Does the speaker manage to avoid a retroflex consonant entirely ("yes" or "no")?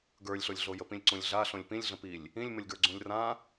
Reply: yes